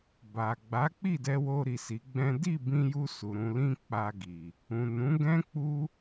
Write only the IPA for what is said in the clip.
b a˨ ɡ͡b a˨˦ k͡p i˦˨ d ɛ˧ w o˧ ɾ i˨ s i˨˦ ɡ͡b ɛ̃˦ d i˦˨ b ĩ˧ j u˧ s u˨ ɾ ũ˧ l ĩ˦ k͡p a˧ ɡ i˨ | ũ˨ n ũ˨˦ ɡ ɛ̃˦ k͡p u˦

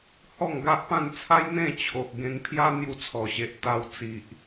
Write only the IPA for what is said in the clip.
h ɔ˥˧ ŋ ɡ a˦ ʔ p ã˥˧ n t͡sʰ a˦ j n̪ ẽ˥˧ t͡ɕʰ o˨ ʔ ɡ ẽ˧ ŋ pʰ j a˦ n̪ j u˧ t͡sʰ ɔ˨˩ ɕ e˨ ʔ t̪ a˧ w t͡s i˨ ʔ

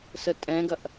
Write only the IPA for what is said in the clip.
s ə tʼ ɛ̃ ɡ ɐ ʔ

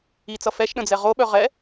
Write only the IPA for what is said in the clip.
i t͡s ʌ f ɛ ʃ ɗ ə̃ d͡z ɛ ʁ o ɓ œ ʁ ɛ

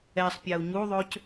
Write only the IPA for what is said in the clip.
ɛ sˤ pʲ a u̯ ɲ u ðˤ ø c

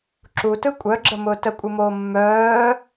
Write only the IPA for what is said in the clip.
ǁ u t ɯ kʷʼ œ ɡ͡ǁ ə m ʊː t ə kʷʼ ɯ m oː mː œː

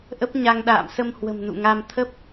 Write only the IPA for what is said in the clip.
ʔ ə˦˥ p̚ ɲ a˧ ŋ ɗ a̰ː˧˨ m s ə˧ m h w ə̤˨˩ m n ṵ˧˨ ŋ a˧ m t̪ʰ ə˦˥ p̚

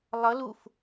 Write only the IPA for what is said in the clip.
lˠ ʌ l u f

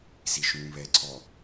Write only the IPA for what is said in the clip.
z i ʃ ũː β ɛ ǀʰ ɔ

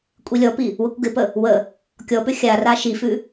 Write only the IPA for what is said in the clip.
kʷʼ i lʲ ɔ p i | w ə kʷ ɡ ɪ p ə | w ə | kʲ ɔ p ʏ xʲ a r a ʃ i f ʉ

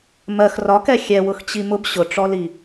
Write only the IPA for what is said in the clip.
m ɜ x r ɒ k ɛ xʲ ɛ w ʊ x t͡ɕ i m ʊ b ɕ ʊ ʈ͡ʂ ɔ l i

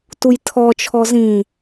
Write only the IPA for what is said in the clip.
t u j tʰ ɔ t͡ʃʰ ɔ z ĩ

